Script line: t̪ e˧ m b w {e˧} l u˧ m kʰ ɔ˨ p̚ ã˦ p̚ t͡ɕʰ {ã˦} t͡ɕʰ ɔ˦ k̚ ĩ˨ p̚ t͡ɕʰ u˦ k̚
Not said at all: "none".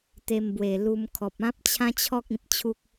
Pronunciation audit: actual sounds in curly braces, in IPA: e˨˩, ã˦

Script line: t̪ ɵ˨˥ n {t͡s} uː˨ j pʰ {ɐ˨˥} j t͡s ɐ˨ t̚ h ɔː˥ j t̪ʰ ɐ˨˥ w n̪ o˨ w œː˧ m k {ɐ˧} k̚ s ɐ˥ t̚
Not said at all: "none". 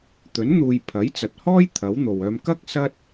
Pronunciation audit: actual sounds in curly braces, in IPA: n̪, ɐ˨˥, ɐ˥

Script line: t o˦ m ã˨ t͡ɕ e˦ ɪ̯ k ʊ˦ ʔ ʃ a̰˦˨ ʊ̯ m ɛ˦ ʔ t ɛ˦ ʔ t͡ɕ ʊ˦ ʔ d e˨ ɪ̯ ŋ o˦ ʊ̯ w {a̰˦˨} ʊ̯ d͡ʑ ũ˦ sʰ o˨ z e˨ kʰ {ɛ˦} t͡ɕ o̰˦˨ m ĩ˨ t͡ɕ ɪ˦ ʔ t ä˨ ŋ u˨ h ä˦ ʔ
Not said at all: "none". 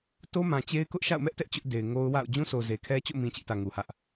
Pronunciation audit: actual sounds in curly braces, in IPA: a̰˦˨, ɛ˦

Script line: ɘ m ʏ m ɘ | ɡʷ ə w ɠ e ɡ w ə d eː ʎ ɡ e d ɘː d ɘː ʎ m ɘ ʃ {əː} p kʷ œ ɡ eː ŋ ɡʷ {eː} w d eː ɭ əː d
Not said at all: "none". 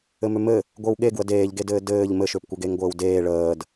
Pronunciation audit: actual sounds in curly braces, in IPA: ʏː, ɘː

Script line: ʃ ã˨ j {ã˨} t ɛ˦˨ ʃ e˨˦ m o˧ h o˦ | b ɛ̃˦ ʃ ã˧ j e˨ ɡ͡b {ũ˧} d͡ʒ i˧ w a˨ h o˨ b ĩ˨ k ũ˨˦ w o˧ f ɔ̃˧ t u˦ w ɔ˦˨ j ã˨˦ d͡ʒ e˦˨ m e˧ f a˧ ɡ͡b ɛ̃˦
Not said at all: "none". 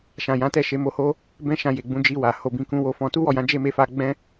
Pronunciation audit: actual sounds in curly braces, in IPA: ã˨˦, ũ˧

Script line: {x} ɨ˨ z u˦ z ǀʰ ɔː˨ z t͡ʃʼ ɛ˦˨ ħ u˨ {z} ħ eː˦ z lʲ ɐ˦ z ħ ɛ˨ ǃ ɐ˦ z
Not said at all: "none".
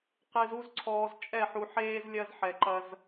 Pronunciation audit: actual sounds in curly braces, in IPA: q, none

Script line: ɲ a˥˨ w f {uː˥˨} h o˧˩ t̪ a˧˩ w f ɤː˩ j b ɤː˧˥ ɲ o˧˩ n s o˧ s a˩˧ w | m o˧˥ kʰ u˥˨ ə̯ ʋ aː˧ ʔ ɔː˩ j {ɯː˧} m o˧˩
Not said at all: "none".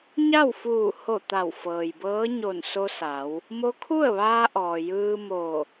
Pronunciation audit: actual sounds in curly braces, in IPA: uː˧˩, ɯː˧

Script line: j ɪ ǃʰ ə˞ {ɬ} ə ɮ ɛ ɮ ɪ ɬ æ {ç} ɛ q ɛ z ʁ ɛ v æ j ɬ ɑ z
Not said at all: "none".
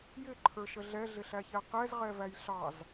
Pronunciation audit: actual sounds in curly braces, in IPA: ʃ, ç

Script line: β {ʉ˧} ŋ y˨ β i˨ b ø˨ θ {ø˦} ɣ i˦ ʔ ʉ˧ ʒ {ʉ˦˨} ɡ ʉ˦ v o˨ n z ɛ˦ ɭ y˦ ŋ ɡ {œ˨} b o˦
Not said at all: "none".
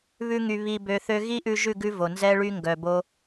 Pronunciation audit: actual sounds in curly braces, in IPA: ʉ˧, ø˧, ʉ˦˨, œ˨

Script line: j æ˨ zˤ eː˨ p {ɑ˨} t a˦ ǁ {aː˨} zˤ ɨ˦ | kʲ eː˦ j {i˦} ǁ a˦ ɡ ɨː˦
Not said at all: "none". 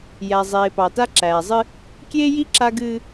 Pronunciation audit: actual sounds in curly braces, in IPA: ɑ˨, æː˨, i˦

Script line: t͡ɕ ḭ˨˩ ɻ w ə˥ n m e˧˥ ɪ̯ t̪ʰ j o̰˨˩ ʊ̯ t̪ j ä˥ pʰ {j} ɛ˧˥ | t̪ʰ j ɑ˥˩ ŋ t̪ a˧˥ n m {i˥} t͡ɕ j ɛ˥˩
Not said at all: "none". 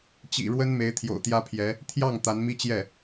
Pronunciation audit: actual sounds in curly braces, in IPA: j, i˥

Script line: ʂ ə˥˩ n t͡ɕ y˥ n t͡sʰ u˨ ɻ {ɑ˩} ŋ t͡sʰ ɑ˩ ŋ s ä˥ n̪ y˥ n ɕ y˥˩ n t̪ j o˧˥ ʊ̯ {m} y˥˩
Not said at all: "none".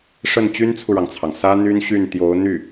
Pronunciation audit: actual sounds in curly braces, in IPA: ɑ˩, n̪

